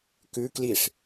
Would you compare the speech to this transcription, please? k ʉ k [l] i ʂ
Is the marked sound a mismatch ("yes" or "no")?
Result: no